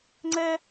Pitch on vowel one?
high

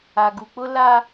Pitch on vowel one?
low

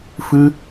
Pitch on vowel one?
high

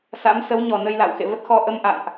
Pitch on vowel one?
rising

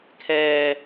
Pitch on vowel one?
low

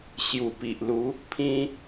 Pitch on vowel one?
low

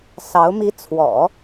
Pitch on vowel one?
rising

